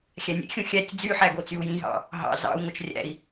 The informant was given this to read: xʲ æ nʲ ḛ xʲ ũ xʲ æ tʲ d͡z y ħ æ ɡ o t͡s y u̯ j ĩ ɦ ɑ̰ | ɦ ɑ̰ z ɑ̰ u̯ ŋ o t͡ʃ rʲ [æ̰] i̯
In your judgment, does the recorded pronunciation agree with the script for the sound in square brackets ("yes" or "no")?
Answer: yes